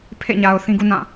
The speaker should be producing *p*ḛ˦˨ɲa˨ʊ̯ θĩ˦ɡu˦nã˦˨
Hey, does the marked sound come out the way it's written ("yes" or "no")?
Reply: no